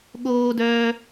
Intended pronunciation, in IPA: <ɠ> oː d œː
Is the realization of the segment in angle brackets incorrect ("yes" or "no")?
no